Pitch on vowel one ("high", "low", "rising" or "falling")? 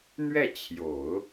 falling